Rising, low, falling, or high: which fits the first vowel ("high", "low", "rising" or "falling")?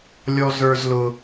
high